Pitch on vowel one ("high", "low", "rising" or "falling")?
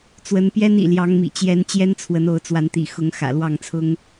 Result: rising